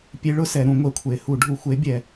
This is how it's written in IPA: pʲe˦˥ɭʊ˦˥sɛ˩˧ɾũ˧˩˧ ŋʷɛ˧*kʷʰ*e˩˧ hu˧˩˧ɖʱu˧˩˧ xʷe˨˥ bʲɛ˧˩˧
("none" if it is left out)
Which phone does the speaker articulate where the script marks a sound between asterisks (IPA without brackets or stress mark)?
kʷʰ